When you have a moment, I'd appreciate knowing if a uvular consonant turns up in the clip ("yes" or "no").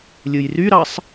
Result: no